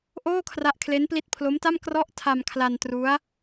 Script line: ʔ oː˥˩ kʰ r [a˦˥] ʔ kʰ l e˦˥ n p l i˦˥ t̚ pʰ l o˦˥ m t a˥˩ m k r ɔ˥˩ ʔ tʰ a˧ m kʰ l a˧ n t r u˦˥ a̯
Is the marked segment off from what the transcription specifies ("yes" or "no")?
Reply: no